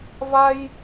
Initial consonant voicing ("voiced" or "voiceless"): voiced